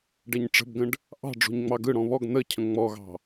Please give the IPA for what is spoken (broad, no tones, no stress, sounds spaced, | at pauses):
ɖ ɛ ɲ ʈ͡ʂ ə̤ b ɡ ə̃ ɖ | ʔ ɑ̤ ɖ͡ʐ o̤ ɲ ŋ͡m ɑ ɡ ɯ ɽ ɔ̃ β ɔ ɡ n̪ ə cʰ ə̃ ŋ͡m ɔ ɣ ɑ̤